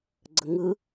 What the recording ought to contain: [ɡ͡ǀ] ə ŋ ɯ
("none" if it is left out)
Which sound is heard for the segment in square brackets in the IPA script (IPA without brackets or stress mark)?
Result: ɡ͡ǀ